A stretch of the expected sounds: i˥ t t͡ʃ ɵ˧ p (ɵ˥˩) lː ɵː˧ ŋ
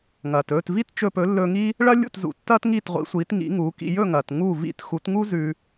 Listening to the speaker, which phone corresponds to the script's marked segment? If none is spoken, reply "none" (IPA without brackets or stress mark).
ɵ˩˥